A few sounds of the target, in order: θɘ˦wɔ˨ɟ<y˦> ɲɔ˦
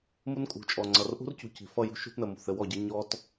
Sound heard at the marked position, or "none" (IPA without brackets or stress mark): i˦